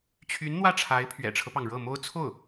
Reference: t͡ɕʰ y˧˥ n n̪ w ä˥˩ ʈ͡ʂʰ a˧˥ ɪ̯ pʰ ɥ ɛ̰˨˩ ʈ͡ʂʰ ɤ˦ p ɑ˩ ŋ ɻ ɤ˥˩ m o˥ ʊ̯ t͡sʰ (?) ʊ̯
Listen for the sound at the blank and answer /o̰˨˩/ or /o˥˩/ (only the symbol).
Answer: o˥˩